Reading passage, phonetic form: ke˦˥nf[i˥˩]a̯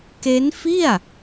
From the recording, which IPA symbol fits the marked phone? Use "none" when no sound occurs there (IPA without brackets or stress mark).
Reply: i˥˩